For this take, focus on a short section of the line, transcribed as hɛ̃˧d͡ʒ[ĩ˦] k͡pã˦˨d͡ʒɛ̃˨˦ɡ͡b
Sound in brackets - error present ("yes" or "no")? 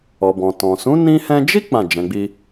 yes